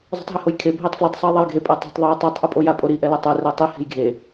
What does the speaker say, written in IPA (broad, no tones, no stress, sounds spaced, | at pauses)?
zˤ ṳ tˤ ɦ e h o j kʰ e bʱ e tˤ f l i tˤ sˤ u j ðˤ ɛ j ɡʱ e pʼ a tˤ ṳ tˤ ðˤ u j tˤ i tˤ ʔ u pʼ o j a pʼ o ɾ i ʔ ɛ l o tˤ ɯ r ɛ tˤ i h e̤ j ɡʱ e